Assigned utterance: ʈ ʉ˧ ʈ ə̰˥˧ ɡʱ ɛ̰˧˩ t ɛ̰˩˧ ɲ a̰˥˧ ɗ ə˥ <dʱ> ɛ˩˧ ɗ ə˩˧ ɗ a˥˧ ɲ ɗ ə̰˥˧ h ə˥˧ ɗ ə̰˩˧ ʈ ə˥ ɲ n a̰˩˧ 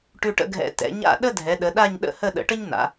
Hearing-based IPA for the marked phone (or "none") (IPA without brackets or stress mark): dʱ